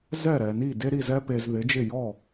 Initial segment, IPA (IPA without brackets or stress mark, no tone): z